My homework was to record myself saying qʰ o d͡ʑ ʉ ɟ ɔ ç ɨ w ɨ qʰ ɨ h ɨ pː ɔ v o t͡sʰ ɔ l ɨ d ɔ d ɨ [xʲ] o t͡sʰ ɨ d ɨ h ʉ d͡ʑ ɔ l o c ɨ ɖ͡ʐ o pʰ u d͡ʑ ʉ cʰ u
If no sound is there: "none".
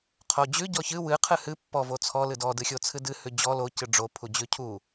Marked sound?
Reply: xʲ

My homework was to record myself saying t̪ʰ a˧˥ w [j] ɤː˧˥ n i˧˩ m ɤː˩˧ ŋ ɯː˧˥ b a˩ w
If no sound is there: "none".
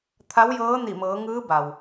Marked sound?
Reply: j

